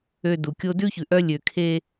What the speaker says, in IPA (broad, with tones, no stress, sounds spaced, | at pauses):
ø˨ d u˨ kʲ o˦ d ʉ˦ ç ʉ˨ ʔ œ˦ lʲ ø˨ kʰ e˦